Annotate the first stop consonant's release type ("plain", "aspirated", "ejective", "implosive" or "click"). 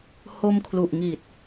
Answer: aspirated